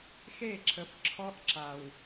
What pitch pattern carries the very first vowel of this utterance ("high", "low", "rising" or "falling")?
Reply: falling